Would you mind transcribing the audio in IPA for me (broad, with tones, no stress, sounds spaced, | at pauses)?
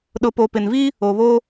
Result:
ɗ ʊ˨ p o˨ p ɪ˨ n v i˦ | o˨ β o˦